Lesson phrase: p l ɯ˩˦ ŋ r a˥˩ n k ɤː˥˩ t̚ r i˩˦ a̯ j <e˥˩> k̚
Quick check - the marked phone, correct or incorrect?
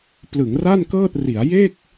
correct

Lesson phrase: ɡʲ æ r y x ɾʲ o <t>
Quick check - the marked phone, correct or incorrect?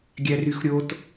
correct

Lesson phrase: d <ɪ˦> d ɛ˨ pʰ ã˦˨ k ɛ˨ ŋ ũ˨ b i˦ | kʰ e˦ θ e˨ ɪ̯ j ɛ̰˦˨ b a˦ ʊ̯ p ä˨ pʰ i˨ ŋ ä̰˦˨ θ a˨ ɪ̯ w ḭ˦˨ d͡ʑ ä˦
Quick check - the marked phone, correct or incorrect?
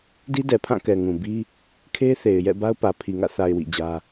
incorrect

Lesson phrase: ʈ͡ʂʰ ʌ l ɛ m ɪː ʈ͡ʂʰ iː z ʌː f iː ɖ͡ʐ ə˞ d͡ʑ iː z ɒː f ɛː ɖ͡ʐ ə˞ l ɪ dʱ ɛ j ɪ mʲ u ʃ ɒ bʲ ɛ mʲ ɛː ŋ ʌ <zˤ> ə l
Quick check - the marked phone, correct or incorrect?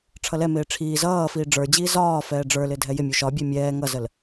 incorrect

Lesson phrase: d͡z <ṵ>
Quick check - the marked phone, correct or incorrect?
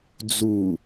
incorrect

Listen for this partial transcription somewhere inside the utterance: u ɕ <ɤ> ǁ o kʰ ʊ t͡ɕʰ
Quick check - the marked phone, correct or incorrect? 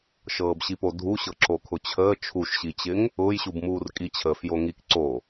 correct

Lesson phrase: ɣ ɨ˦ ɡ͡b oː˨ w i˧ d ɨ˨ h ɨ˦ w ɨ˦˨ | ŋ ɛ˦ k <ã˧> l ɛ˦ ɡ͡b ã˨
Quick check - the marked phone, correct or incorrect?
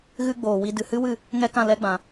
incorrect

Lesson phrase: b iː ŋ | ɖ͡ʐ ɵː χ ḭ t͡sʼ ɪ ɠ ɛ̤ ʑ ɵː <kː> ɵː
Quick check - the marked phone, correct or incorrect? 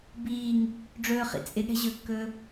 correct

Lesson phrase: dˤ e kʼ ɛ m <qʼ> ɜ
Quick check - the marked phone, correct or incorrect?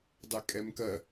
incorrect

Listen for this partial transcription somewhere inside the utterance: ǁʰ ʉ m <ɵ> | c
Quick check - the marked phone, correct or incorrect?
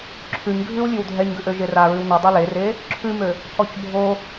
incorrect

